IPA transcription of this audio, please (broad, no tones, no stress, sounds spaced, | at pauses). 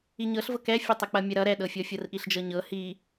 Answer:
i ɲ ɤ ɬ v ɤ k ɛ fʲ ʌ tˤ ɐ k͡p ɐ mʲ ɐ ɾ ʌ ɾ ɛ ɗ ɤ fʲ ɔ fʲ ɤ r ʔ i ɬ d͡ʒ ɤ ɲ ɤ h i